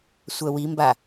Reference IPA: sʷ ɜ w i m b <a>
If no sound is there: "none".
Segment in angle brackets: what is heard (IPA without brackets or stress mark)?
a